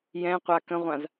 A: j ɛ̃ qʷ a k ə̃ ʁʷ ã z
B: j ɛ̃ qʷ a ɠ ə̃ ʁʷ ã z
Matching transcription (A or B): A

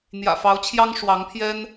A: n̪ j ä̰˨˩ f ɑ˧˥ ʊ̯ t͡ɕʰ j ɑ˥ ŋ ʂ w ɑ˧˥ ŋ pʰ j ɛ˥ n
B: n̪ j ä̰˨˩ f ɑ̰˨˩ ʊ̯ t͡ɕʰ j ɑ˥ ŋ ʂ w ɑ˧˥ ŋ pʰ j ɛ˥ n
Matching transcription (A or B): A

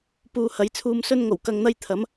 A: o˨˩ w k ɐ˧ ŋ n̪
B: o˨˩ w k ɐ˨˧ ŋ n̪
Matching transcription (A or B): A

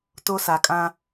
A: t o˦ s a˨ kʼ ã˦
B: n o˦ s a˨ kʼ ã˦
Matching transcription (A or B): A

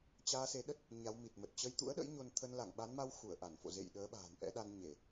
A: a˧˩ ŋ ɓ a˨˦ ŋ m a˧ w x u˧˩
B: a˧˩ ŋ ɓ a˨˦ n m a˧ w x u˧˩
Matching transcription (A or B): B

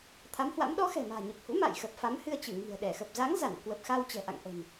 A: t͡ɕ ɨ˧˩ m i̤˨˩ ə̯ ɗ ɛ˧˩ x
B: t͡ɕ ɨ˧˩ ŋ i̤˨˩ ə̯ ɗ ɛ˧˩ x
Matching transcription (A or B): B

